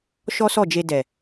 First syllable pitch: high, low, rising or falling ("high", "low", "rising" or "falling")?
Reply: high